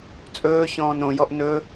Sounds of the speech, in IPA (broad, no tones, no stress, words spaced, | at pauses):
t͡sʼɵːçɔ̃ːn õjɔʔ nɵ